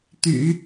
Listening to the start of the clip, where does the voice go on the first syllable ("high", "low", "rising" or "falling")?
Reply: low